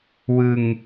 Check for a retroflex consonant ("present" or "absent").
absent